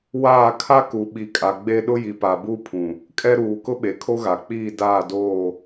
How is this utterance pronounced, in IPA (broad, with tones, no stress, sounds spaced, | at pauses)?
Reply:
w aː˦˨ kʰ a˦ k u˨ ɓ i˨ kʼ a˨ ɡ͡b e˦ ɗ ʊ˦ j i˨ p a˨ b u˦ pʰ ũ˨ | kʼ ɛ˦ ɾ uː˨ k ʊ˦ ɓ e˨ kʰ o˦ ɣ a˨ k͡p iː˦˨ d aː˦˨ d oː˦˨